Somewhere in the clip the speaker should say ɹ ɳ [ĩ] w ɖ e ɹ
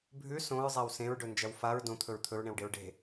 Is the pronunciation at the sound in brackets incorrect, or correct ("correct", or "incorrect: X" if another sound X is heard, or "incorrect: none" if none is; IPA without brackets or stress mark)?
incorrect: ẽ